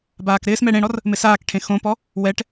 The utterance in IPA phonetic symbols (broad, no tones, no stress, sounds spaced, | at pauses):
b aː k ɾ ɪː s m ɛ ɽ ẽ ɽ ɔ r | m ɪ s aː k ʈʰ ẽ x õ p ɔ | w ɛ ʈ